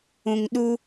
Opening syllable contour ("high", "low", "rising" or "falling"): low